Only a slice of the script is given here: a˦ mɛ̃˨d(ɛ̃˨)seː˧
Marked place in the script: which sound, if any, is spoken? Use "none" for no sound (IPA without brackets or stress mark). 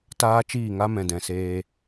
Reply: ɛ̃˨